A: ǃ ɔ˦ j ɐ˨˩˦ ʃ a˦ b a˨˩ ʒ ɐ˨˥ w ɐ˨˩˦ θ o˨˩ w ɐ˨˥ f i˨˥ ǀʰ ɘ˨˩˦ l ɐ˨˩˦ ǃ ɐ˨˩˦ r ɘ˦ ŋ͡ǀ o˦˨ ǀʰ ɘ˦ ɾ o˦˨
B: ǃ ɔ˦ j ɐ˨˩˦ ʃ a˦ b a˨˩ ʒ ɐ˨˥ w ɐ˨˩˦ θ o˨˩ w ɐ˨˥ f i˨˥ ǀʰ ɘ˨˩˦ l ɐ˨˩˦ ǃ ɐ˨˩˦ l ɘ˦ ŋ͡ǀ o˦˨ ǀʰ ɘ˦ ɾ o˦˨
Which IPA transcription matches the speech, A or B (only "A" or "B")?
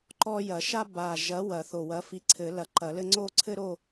B